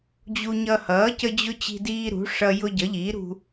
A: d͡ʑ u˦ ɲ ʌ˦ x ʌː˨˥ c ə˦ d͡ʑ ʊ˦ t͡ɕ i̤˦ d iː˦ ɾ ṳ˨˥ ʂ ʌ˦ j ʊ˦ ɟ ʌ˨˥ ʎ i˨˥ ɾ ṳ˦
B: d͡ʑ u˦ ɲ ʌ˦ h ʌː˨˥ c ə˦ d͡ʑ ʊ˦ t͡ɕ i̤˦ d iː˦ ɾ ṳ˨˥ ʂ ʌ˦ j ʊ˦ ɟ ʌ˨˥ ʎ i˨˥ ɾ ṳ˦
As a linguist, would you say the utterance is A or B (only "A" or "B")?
B